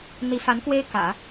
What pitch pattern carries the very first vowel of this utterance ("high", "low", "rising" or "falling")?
rising